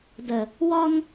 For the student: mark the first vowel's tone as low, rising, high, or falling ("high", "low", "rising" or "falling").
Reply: low